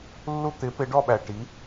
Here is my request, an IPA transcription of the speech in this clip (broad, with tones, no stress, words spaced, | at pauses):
lːu˥˨t̪ɪ˨˥pɪ˨˥ɖɔ˥˨ ɓæ˨ʈi˨˥